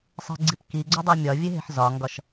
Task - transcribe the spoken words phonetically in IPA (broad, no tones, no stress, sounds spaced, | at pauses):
sˤ e̤ ɡ͡ǀ i p k i ɡ͡ǀ o dˤ i mʲ ɒ vʲ e ɦ e̤ ħ z ɒ ŋ ɡ ɒ ʃ